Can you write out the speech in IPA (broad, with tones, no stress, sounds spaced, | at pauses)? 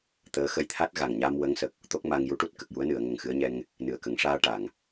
t̪ əː˧˥ x ə˧ j t̪ʰ a˦˥ t̚ ɣ a˨˩ ŋ ɲ aː˧ m w ə˧˥ ŋ s ə˨˩ k̚ | t̪ o˦˥ k̚ m a˧ ŋ j u˧˥ ʈ u˦˥ t̚ k ə˨˩ k̚ j u˧˥ ə̯ n ɨ˨˩˨ ə̯ ŋ ə˨˩ ŋ x ɨ˧˥ ə̯ ɲ ɛ˧ ŋ | n ɨ˨˩ ə̯ k ə˨˩˦ ŋ ʂ aː˧ ʈ a˨˩˨ ŋ